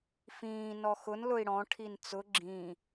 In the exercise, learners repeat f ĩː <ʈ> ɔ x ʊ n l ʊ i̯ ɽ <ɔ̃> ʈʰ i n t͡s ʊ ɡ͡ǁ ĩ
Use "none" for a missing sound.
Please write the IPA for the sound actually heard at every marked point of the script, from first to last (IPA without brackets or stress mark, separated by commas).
n, ɔ̃